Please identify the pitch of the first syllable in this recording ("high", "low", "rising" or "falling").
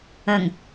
low